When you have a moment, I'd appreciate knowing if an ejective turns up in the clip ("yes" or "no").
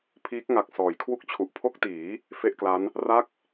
no